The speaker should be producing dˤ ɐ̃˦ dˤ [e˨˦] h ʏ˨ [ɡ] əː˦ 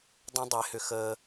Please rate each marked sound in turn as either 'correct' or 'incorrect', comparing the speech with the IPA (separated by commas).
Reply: correct, incorrect